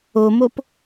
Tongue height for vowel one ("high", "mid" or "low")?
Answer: mid